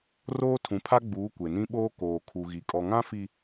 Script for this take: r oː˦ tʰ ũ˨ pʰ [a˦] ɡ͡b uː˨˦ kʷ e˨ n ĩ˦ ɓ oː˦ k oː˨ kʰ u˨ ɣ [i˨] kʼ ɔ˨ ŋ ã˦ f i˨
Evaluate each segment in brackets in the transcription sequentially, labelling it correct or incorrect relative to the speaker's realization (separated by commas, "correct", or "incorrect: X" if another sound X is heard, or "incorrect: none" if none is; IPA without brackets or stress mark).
correct, correct